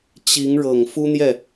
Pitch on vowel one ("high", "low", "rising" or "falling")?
rising